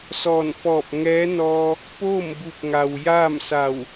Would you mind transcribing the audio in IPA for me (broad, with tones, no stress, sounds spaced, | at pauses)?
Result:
s ɔː˧˩ n f ɔː˧˩ p̚ ŋ ɛː˧˥ n ɔː˧ | p oː˥˨ m b u˧˩ p̚ ŋ a˩ w j aː˥˨ m s a˧˩ w